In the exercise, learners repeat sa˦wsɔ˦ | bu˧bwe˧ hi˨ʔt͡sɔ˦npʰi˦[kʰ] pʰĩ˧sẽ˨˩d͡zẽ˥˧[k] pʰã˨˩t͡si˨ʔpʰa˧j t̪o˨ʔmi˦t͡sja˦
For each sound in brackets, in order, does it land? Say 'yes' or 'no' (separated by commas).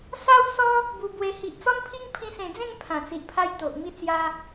no, no